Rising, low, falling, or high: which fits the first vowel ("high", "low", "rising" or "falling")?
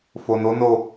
low